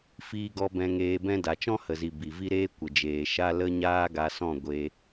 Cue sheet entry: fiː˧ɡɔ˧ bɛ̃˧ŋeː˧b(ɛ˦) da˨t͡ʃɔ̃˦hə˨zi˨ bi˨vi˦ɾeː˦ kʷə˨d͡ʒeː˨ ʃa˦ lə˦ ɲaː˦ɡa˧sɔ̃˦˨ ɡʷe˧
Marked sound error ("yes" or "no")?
yes